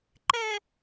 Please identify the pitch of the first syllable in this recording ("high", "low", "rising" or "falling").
high